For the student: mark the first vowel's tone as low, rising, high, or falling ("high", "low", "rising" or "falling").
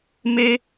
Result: high